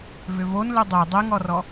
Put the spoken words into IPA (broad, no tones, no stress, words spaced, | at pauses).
vʏvon lɨdˤe dˤeŋɔrɔ